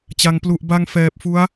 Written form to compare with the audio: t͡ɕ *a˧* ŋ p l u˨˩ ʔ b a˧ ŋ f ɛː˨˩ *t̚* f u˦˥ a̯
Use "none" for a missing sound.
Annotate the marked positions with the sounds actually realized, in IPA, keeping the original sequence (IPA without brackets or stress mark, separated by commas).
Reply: a˧, p̚